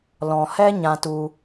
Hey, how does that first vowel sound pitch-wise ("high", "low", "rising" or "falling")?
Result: low